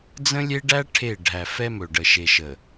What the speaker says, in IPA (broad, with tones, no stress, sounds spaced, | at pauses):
d͡z ə̃˦ lʲ e˦ ɖ æ˦ ʈʰ e˦˨ ɖʱ æ˨ f ɛ˦ m ɵ˨ ɖ ə˨ ʃ e˨ ʃ ə˨